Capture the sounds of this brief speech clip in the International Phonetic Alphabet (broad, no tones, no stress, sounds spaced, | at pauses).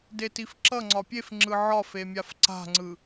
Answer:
d e t i f ǁ ʌ ŋ͡ǀ ɒ pʲ e f ŋ͡ǁ ɯ ʕ ɒ f e mʲ a f ǀ a̤ ŋ͡ǀ ɯ